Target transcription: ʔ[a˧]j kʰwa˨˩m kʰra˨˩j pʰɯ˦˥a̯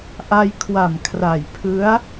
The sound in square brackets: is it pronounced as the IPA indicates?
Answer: yes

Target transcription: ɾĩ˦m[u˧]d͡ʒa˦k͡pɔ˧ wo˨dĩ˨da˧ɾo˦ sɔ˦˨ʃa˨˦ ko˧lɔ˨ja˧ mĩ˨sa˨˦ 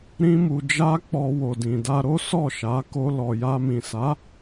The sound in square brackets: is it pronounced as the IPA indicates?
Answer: yes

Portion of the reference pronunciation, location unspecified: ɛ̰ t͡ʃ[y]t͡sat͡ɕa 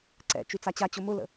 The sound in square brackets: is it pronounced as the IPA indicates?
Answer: yes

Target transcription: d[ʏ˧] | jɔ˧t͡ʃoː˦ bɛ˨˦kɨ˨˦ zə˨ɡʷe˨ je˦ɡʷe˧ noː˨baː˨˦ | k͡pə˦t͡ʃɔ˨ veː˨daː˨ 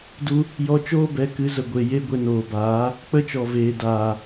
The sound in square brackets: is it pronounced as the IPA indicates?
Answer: no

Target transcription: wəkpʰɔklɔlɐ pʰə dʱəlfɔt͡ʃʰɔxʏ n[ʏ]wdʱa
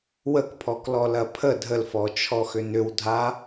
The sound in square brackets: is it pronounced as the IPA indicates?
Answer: yes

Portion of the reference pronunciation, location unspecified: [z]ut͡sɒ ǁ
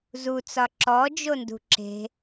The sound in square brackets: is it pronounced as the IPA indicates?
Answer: yes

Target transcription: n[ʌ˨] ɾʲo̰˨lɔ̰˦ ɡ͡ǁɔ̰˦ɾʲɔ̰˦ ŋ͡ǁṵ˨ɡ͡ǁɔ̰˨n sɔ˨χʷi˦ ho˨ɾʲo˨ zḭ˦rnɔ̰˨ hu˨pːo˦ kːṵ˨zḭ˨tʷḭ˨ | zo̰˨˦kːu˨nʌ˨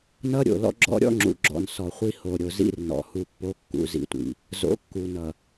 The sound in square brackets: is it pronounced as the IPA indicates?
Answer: no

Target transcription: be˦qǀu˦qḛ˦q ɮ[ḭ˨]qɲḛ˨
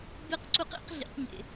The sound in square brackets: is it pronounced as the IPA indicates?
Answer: yes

